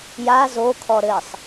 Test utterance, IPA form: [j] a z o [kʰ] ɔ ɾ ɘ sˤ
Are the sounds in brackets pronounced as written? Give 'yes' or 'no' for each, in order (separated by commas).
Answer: yes, yes